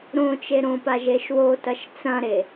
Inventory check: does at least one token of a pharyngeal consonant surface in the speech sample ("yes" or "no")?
no